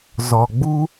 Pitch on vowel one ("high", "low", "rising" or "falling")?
low